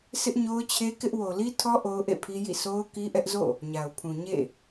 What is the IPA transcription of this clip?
sɪ˦ʔɲo˦ʊ̯t͡ɕʰe˦ kɪ˦ʔ wo˨li˦tʰɔ˦ ʔo˦ʊ̯ʔḛ˦˨pʰi˦jḭ˦˨ sʰo˦ʊ̯ki˦ʔɛ˦ʔzo̰˦˨ | ɲa˨ʊ̯pʰũ˨ ɲḛ˦˨

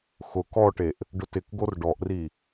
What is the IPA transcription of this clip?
xʊ kɔʈeʔ | ɖʊtɪkɡor ɖɔʔri

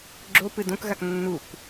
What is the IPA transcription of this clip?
ɡ͡ǁo pɨdõkɣak nːuk

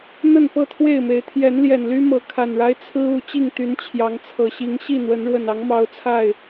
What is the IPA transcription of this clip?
n̪ə˥˨npɤ˥˨t̪ʰwe˥˨ɪ̯me˨˦ɪ̯ t̪ʰjɛ˨˦nljɛ˨˩n ly˦mɤ˨˦ kʰa˨˩nɻa˦ɪ̯ t͡sʰɹ̩˦ u˨˦ t͡ɕi˥˨ŋt̪y˨˦n t͡ɕʰjɑ˨˦ŋt͡sʰɤ˨˩ɕi˨˦ŋ ɕi˥˨n̪wə˨˦n ɻwə˨˩nɑ˨˦ŋ mɑ˨˦ʊ̯ t͡sʰa˥˨ɪ̯

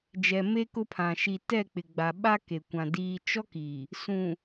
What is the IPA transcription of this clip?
d͡ʒɛ˨me˦kʊ˦pʰã˨ ʃi˨tɛ˦˨k͡pɪ˨ ɡ͡ba˨ɓa˦ ke˨kʷã˨ diː˦ t͡ʃɔ˦ki˨ | sũ˨

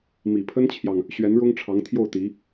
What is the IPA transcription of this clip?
mi˨˩pʰə˥nt͡ɕʰjɑ˨ŋ | ɕɥɛ˧˥nɻʊ˥ŋʈ͡ʂʰɑ˧˥ŋ t̪ʰjo˥˩ʊ̯t̪i˧˥

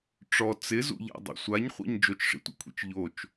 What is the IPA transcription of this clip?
ʈ͡ʂɔ t͡sɪzṵʎa̰dˤṵ sʷaɲχʷḭɲ d͡ʒot͡ʃʂḭtʷḭkʷʰḭt͡ʃ ʎot͡ʃ

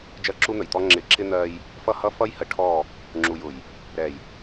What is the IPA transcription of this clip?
d͡ʒɜ˦ǁu˦n̪ə˨jt̪ɔ˦ ŋ͡ǁɪ˨ǁɪ˦ n̪ɜ˦j | fʌ˦hʌ˦ fʌ˦jhə˨ʈʰɔ˦˨ | ŋ͡ǁu˨jʊ˨j | ɾɛ˨j

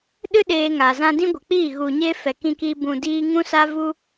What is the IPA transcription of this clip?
ɗɨ˦ ɗeː˧ŋa˨ zã˧dĩ˦ɡʷə˨k͡piː˦˨ ɣu˨ ɲe˦fɛ˨kĩ˧kiː˧ bũ˨diː˧ ŋũ˦sa˦vu˦

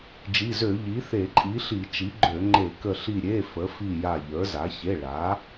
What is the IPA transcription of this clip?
d͡ʒi˩˧˩zø˧˩˧ ʎi˩˥θe˧˩˧ǃʼi˩˥ɬi˧˩˧ t͡ʃi˩˥ɡ͡ǃø˧˩˧ŋ͡ǃe˧˩˧ kə˧˩ɬi˧˩ ɾʲe˩˧˩ fə˩˥fi˧˩ ja˧˩ʎə˞˩˥za˩˥ çe˩˧˩ ɭa˩˥

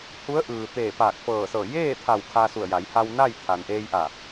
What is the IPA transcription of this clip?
hu˧˥ə̯ʔɯː˩ t̪eː˧˩paː˧˩k̚fɤː˧˩sɤː˧˩ jeː˥˨t̪ʰa˧˩w kʰa˧su˧˩ə̯ja˩˧j ha˧wna˥˨jt̪ʰa˩n ʔeː˧jʔa˧˩

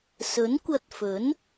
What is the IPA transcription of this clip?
sɵ˨˥nkʷɐ˧t̚fɵ˨˥n

